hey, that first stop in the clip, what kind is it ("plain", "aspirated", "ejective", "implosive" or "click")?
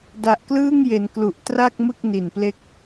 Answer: plain